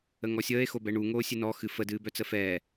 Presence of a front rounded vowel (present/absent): present